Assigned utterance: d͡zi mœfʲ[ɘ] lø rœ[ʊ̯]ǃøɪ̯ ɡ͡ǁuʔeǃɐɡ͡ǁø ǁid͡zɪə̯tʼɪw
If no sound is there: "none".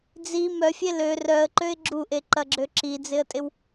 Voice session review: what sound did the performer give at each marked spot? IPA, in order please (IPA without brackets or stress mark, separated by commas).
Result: e, ə̯